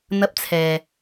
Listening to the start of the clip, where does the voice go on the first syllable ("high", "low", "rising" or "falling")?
high